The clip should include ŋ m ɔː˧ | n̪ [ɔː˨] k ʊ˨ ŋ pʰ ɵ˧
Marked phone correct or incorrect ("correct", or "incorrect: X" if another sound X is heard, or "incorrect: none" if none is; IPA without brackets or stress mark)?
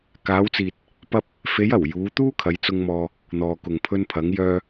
correct